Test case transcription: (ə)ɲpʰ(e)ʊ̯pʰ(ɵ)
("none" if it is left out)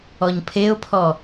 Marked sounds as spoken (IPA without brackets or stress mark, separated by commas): ɔ, e, ɔ